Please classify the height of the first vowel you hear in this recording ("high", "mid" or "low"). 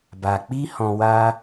low